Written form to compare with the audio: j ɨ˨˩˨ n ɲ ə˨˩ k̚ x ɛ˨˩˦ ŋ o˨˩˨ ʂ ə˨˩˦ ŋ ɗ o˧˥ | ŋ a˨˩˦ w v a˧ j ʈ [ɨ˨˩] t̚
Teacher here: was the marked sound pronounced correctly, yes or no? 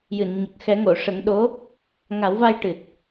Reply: yes